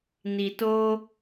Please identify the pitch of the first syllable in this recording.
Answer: low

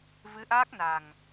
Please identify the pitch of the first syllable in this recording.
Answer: rising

